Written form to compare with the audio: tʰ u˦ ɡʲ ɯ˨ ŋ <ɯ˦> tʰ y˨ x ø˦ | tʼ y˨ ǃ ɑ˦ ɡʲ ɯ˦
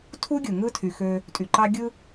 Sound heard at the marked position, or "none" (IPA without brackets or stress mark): ɯ˦